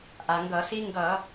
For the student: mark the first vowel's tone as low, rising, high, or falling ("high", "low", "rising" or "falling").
low